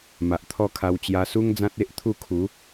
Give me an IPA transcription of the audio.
m a˨ ʔ t̪ʰ ɔ˦ kʰ a˧ w t͡ɕ j a˧ s u˦ ŋ d͡z ã˦ t̚ e˦ ʔ t̪ʰ u˥˧ kʰ u˨˦

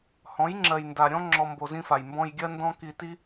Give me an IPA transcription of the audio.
h ɔ̃˨˦ j ŋ͡ǁ ɜ˨ j n d a˨ ɾʲ ɔ̃˦ ŋ͡ǁ ɔ˧ m b o˧ z ĩ˦ f a˨ j m b ɔ̃˧ j ɡʲ ɜ˦ n d ɔ̃˦ k i˧ t i˦

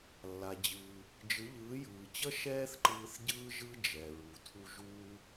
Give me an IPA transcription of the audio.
lː a˩ d͡ʑ ɯː˩ | d͡ʒ ɯ˩˥ ʎ ɯː˩˥ j ɯː˩ t͡ɕ ʌ˥ ʃ ɛː˥ θ ǃ ɯː˧ θ ɟ ɯː˥ ʒ ɯ˥ d͡ʒ ɛ˩ ɹ u˩ tʰ u˧ ʒ uː˧

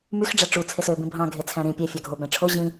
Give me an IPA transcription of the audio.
m y x ɖ͡ʐ æ ʈ͡ʂ u t͡sʰ e s ø b ĩ bʱ ɑ̃ ɡʱ e t͡sʰ æ̃ ɾ ĩ pʲ æ fʲ ɑ ɡʱ o b æ̃ ʈ͡ʂʰ o ʑ ĩ

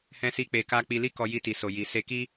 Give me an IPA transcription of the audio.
h ɛ̃˦ s i˦ k͡p e˧ k a˦ k͡p i˧ l i˦ k ɔ˧ j i˧ t i˨ s o˨ j i˨ s e˧ k i˦

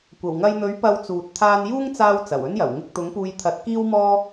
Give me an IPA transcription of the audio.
kʷ ɐ˨˩ w ŋ ɐ˧ j n̪ ɵ˨˥ ɥ p ɐ˧ w t͡s uː˨ t̚ t̪ʰ aː˧ n j uː˥ ŋ t͡s aː˧ w t͡s ɐ˨˩ w ɵ˥ n j ɐ˨˩ w ŋ ɪ˧ k̚ t̪ ʊ˨˥ ŋ p uː˧ j t̪ʰ ɐ˧ t̚ k iː˥ w m ɔː˥

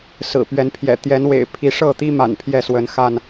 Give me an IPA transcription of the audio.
s ɹ̩˨˩ p ɥ ɛ˨˦ n pʰ j ɛ̰˨˩ t̪ j ɛ˨˦ n w ḛ˨˩ ɪ̯ pʰ i˨˦ ʂ ɤ˥˨ t̪ i˦ m a̰˨˩ n pʰ j ɛ˥˨ s w ə˨˦ n x a˥˨ n

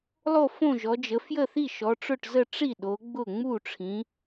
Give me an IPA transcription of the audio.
lˠ o˥˨ f õ˥˨ ʒ ɔ˨˦ d͡ʒ ə˨˦ f j ə˥˨ θ i˥˨ ʃ ɔ˨˦ ʈ͡ʂ ʊ˥˨ ʈ z ə˥˨ ʈ͡ʂ i˥˨ ɗ o˨˦ ɡ͡b ʊ˥˨ ŋ͡m u˥˨ ʈ͡ʂʰ ĩ˨˦

